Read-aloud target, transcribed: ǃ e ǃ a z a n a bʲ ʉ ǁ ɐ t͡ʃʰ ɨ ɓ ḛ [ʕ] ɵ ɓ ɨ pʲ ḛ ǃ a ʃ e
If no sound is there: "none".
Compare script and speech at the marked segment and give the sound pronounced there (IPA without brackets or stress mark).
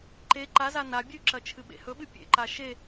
h